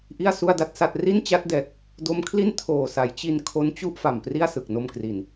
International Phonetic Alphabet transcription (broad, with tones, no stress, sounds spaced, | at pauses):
ʔ i˥˩ a̯ s u˥˩ a̯ d a˥˩ t̚ s a˥˩ t̚ r i˥˩ n t͡ɕ a˦˥ t̚ d ɛː˨˩ k̚ | d o˦˥ m kʰ l i˥˩ n tʰ oː˨˩ s a˩˦ j t͡ɕ i˧ n kʰ o˦˥ n t͡ɕ u˥˩ ʔ f a˨˩ m p r i˥˩ a̯ s ɯ˨˩ k̚ n o˧ m k r i˨˩ n